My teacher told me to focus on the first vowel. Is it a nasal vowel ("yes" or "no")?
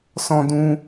yes